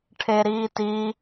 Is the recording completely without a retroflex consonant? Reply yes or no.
no